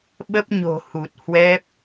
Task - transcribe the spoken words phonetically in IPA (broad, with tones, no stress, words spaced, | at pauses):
ɓə˦˥p̚ɲo̤˨˩ hu˨˩t̚hwɛ˦˥p̚